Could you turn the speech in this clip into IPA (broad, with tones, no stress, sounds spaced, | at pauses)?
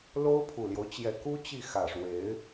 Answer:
l o˥ ʊ̯ pʰ u˨˩ l j o˦ ʊ̯ t͡ɕ j ɛ˨˩ k u˥ t͡ɕ i˥˩ x ä˨˩ ʂ w e˧˥ ɪ̯